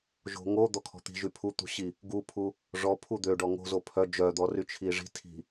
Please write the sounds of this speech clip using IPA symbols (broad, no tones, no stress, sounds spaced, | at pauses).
ʒ o̤ ŋ o d̪ ɔ kʰ ɔ̤ t̪ i̤ ʒ y pʰ u t̪ ṳ ɕ i | ɡ u pʰ u | ʐ ɔ pʰ u d̪ ø ɖ ɔ ŋ o̤ z o pʰ œ d͡ʒ œ d̪ ɔ r y t͡ʃʰ i ʐ i̤ tʰ i̤